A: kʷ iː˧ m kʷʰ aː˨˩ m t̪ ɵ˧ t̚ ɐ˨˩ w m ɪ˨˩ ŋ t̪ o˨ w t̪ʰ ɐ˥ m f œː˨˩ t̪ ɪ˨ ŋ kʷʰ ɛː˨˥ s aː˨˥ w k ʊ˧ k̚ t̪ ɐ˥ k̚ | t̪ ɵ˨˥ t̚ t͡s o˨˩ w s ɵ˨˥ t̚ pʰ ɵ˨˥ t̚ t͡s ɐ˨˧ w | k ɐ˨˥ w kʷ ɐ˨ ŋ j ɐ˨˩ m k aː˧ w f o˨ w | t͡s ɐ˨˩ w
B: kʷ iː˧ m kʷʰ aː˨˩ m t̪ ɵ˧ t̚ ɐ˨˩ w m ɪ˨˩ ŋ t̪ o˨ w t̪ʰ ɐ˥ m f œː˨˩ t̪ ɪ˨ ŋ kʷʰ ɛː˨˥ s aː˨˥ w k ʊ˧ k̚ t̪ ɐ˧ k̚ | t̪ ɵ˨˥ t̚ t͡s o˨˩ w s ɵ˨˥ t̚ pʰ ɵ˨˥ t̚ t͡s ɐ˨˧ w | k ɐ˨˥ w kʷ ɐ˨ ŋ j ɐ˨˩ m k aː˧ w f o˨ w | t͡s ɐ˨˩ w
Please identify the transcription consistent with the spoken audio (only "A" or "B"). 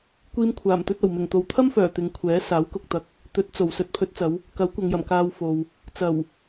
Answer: B